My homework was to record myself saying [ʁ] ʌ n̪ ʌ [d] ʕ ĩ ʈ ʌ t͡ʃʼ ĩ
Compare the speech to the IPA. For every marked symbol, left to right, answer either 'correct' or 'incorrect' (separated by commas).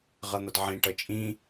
correct, correct